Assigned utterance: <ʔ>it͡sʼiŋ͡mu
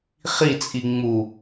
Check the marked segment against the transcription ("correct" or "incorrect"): incorrect